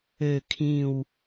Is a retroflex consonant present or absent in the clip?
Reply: absent